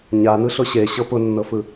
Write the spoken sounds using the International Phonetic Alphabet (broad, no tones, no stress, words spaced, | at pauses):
ɲanɯɬʊ ɕeɕɤ pʊnːɤfɯ